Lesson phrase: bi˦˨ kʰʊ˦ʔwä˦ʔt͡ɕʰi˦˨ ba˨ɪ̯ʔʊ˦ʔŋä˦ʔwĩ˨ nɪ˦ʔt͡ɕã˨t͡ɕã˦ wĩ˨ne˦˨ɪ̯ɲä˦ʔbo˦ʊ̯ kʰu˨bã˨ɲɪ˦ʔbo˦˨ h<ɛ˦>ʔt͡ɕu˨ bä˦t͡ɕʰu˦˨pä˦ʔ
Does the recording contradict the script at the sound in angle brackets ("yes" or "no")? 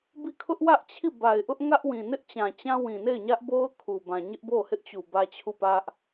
yes